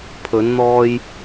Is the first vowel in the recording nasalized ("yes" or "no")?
no